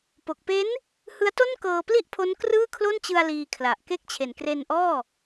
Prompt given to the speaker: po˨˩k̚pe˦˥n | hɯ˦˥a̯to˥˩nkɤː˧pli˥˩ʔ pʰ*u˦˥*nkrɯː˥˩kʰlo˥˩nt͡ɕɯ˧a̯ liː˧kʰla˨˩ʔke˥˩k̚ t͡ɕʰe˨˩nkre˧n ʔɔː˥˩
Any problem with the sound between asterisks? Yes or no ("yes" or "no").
yes